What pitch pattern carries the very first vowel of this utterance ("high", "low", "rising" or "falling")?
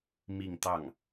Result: falling